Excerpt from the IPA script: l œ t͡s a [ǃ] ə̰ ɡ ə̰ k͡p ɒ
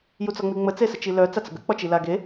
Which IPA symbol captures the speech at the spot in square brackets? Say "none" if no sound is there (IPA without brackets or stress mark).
t͡s